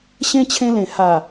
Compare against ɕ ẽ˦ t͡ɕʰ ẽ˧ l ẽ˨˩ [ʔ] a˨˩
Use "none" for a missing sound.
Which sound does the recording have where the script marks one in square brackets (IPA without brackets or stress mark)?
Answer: h